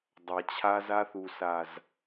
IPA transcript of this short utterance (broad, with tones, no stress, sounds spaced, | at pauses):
dˤ a˨ t͡ɕʰ a˧ z a˧ θ u˨ s a˨ z